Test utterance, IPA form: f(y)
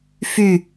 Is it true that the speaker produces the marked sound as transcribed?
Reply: yes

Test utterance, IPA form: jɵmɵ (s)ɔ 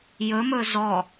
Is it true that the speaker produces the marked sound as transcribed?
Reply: no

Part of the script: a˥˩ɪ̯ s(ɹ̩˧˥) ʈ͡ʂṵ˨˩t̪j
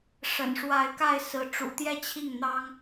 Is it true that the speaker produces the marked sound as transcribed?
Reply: yes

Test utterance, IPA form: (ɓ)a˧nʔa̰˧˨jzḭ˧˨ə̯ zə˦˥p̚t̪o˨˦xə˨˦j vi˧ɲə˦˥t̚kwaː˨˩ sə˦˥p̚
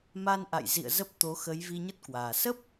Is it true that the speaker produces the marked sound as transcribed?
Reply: no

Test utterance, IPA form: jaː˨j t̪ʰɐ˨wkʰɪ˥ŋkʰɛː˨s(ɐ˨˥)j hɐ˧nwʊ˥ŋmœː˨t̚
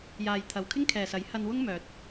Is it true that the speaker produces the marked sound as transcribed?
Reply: yes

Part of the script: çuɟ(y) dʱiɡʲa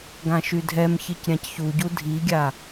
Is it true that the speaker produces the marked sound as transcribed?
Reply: no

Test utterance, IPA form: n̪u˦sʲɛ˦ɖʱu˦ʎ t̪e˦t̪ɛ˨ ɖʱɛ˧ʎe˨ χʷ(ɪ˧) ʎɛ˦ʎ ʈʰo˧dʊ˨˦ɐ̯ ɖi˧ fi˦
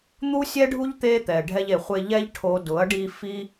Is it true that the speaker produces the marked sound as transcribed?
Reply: yes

